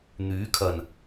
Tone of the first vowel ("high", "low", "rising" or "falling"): rising